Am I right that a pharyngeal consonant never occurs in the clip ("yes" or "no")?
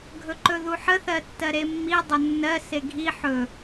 no